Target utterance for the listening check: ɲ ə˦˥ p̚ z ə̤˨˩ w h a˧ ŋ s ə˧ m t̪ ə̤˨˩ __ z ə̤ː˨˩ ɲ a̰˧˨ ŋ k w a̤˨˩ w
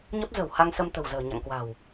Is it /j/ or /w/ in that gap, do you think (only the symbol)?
w